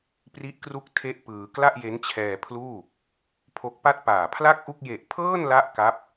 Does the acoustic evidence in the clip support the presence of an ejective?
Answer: no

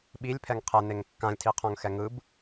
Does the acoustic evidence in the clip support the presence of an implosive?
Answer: yes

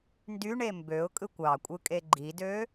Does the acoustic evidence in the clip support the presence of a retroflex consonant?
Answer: yes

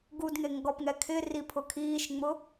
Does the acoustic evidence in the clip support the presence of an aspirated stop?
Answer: yes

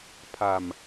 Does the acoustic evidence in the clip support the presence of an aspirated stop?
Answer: yes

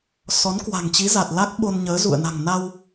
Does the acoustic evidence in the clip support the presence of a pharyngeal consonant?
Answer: no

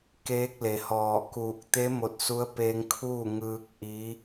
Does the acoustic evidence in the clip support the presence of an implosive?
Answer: no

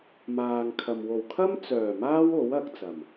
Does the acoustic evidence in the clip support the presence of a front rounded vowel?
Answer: yes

